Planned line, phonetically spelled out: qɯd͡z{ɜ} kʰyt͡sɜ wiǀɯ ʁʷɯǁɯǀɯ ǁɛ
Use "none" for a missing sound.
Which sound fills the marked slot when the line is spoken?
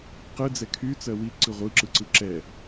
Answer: ɛ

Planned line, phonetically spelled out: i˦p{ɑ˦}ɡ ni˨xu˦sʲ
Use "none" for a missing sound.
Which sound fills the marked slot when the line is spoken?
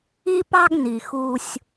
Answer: ɑ˦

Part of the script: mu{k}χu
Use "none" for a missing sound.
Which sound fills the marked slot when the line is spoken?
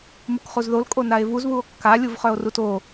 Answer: k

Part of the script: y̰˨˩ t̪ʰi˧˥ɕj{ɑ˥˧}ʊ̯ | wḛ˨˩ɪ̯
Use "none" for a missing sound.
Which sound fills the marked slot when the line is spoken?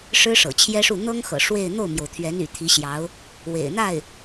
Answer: ɑ˧˥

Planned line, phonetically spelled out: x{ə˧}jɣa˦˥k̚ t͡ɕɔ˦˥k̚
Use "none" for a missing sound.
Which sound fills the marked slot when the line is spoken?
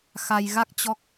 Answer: a˧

